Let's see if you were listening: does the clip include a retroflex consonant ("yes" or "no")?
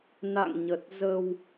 no